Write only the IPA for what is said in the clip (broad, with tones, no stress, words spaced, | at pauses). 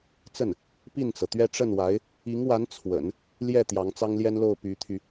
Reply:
t͡sə˥˩n | pi˥˩nt͡sɤ˩t̪ɥɛ˥ ʈ͡ʂə˥˩nwa˧˥ɪ̯ | i˧˥ŋwa˧˥n t͡sʰwə̰˨˩˦n | ljɛ˥˩ t̪jɑ˧˥ŋt͡sɑ˥ŋljɛ˥nlo˥˩ʊ̯ py˧˥t̪ʰy˧